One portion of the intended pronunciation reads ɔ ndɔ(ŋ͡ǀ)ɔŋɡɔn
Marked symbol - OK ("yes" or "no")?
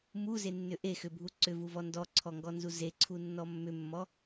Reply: no